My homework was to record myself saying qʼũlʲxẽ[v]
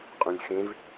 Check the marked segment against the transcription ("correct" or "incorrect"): correct